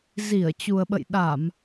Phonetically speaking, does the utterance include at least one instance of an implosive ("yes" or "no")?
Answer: yes